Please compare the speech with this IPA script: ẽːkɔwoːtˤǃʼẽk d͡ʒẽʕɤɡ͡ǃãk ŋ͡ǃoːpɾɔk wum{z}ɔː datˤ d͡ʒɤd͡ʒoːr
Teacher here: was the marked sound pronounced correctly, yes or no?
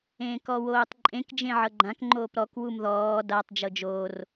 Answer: no